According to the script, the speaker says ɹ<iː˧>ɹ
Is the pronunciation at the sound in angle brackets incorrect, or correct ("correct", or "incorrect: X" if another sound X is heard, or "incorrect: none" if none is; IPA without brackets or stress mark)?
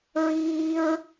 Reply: correct